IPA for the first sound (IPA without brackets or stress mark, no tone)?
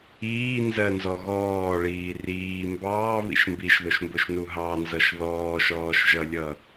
iː